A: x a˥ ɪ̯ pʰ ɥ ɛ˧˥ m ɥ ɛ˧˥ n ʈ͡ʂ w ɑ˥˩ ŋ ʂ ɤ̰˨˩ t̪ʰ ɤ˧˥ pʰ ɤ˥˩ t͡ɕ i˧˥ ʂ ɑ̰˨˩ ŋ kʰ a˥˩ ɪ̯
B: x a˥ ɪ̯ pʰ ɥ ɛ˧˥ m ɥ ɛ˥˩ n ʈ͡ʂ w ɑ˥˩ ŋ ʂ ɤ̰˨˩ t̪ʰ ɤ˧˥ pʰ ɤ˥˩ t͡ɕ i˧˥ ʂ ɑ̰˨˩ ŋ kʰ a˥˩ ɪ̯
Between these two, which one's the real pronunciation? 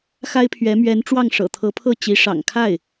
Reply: A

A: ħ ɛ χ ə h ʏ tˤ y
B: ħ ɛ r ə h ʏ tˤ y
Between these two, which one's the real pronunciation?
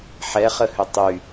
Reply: A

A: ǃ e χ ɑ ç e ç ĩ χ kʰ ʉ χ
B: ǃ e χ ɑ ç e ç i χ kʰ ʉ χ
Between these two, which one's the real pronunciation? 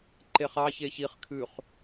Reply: B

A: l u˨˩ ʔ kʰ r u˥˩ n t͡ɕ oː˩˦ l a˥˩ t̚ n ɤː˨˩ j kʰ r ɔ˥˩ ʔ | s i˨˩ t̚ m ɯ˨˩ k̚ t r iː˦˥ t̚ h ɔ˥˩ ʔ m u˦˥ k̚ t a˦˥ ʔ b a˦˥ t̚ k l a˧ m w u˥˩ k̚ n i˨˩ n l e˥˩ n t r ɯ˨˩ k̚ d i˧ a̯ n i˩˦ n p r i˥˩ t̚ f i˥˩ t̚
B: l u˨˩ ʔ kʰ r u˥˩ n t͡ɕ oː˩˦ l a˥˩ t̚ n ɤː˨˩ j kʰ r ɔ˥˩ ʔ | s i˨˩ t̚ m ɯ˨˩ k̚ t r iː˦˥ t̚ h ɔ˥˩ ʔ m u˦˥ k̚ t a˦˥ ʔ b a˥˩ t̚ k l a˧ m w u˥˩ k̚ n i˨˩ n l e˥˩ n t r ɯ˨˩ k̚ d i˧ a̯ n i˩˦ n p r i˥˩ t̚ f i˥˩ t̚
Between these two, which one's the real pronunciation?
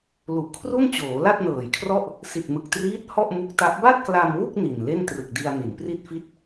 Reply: B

